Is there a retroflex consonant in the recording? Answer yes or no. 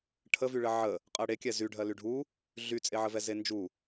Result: yes